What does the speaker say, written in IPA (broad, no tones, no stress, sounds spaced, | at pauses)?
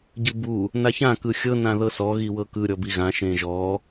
ɟ ɯ b u | n a ç ã k ɯ xʲ ɤ n ã ð ɤ s ɔ ɣ i w ɤ k ɯ ɾʲ ɔ b i ɣ ã ʃ ẽ ʒ ɔ